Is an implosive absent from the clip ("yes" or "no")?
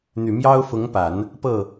yes